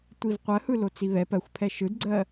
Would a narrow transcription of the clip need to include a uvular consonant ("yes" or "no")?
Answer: yes